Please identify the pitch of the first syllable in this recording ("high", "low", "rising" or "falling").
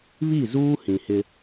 falling